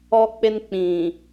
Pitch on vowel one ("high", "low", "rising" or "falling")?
high